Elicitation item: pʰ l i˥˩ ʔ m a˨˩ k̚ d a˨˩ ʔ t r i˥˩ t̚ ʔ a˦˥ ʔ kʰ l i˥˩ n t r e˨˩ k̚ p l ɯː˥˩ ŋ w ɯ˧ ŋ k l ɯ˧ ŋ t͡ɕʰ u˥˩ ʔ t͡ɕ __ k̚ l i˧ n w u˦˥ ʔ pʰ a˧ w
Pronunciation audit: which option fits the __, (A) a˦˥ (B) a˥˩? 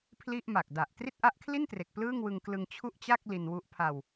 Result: B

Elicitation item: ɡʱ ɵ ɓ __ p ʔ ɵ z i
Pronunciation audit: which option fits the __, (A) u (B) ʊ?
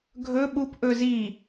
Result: A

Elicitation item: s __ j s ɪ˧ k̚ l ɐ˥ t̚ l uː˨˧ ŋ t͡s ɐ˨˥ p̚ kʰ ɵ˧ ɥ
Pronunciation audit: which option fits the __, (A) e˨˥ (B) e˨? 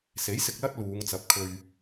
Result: A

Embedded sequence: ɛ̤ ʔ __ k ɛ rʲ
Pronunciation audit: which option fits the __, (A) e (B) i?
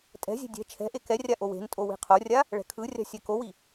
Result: A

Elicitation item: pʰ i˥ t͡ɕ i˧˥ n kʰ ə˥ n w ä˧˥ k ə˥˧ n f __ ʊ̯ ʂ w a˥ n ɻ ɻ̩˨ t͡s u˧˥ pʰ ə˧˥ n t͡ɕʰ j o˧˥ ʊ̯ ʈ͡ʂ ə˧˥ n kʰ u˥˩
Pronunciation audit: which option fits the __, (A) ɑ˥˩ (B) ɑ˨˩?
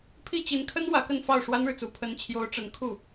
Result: A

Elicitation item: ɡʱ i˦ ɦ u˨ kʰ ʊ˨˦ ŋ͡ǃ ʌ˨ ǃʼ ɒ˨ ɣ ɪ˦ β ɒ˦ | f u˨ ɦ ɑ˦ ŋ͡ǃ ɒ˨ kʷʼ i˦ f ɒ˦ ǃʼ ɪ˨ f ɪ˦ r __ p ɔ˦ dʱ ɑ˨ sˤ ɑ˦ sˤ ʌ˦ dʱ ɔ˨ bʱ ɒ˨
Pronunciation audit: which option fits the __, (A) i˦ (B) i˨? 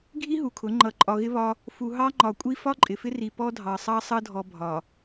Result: B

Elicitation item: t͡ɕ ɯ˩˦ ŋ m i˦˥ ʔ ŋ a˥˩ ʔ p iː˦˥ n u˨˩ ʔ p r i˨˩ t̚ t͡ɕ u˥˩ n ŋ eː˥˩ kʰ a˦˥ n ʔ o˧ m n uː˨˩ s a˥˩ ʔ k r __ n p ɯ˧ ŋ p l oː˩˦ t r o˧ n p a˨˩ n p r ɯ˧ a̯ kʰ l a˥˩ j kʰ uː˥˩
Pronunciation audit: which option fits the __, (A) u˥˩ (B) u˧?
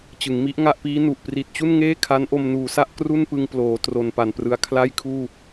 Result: A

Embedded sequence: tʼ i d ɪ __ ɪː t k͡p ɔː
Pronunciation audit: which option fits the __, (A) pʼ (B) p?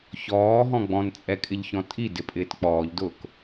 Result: A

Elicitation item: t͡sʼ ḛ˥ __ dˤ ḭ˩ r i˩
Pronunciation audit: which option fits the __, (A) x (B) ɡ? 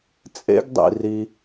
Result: B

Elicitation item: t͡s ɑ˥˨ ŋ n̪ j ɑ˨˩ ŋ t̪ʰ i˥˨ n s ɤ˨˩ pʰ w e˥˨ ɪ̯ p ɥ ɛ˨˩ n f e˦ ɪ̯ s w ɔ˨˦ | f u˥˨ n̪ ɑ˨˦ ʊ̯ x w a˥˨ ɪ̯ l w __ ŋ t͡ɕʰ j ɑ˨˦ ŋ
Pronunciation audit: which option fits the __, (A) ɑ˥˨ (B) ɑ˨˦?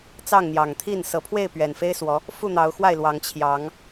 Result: B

